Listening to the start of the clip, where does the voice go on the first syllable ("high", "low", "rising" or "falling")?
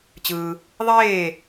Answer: low